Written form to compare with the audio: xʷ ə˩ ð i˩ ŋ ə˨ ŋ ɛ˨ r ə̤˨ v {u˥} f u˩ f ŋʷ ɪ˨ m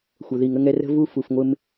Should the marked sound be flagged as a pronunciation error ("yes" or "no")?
yes